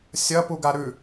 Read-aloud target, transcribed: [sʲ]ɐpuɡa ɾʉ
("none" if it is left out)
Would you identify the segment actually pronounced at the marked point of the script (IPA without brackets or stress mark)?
sʲ